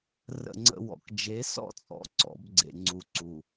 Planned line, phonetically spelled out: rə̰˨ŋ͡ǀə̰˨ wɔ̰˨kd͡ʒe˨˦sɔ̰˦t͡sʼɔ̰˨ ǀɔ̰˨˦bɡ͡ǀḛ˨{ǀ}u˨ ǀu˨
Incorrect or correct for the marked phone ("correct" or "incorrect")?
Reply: incorrect